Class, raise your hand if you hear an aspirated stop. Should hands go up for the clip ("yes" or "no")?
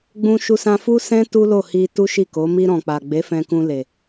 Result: no